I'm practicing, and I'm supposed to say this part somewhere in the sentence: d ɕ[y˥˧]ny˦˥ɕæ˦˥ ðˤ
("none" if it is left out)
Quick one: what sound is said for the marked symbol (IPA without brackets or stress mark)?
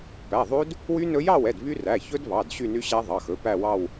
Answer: y˥˧